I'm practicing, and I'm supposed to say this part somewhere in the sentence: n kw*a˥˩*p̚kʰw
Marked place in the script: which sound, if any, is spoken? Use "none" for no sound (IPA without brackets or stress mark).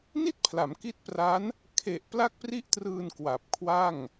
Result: a˨˩